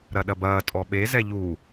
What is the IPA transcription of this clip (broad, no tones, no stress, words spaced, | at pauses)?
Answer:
ɾɐɗɐbɐː tʼɔɓe zɛʎu